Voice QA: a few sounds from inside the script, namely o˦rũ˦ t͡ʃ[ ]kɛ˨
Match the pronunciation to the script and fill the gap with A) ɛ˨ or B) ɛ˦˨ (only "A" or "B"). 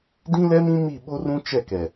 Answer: B